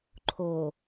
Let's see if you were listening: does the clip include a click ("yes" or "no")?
yes